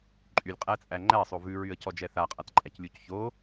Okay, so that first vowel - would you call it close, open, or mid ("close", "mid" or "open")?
close